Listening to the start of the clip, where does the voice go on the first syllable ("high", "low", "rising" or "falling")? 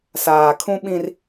low